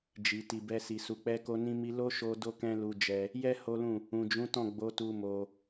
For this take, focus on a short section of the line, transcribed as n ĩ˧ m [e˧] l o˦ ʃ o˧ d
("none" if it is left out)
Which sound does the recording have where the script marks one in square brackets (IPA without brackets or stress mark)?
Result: i˧